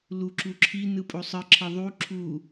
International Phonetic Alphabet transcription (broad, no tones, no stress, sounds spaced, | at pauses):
l u ǁ u ǁʰ i n ɯ pʼ o sˤ ɯ ǁʰ ə ðˤ u ǁʰ u